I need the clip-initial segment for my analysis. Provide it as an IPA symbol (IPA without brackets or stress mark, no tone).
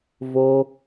v